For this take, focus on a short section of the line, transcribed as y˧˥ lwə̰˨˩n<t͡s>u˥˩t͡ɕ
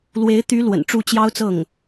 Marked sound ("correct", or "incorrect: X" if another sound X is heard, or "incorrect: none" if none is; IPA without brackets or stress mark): incorrect: ʈ͡ʂ